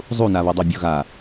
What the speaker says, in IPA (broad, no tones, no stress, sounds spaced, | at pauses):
zˤ u n a β o dˤ o bʲ o ɣ a